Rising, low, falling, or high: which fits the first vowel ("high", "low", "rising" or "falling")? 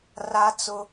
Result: high